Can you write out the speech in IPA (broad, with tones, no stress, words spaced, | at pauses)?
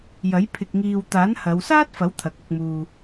jɐ˨˥j pʰɪ˨k̚ŋiː˨w t̪aː˨˥nhɐ˨˧wsaː˥t̚fɐ˨˥w t̪ʰɐ˨˥k̚ɐ˧k̚muː˧